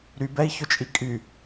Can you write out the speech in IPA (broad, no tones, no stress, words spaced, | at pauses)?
ɾybɛi̯çʊt͡ʃʼi kʼy